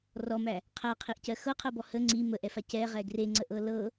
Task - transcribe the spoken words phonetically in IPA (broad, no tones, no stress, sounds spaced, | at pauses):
r ɔ m æ | qʰ æ qʰ i ʔ c ɜ x ɤ qʰ ɜ b ɔ h ə ŋ͡ǀ i m ə ʔ ɛ f a c ɛ ʁ ɛ ɡ r e ŋ͡ǀ ə ʔ ɤ l ɤ